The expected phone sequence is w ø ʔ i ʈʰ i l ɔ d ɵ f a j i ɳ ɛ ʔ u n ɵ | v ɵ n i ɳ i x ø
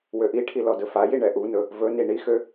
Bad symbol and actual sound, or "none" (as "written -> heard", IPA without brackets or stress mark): none